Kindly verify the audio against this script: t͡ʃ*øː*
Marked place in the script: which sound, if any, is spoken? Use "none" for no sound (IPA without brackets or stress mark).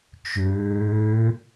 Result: øː